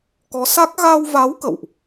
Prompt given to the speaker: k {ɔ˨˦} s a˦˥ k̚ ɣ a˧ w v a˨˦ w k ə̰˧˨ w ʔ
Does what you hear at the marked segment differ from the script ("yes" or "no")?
no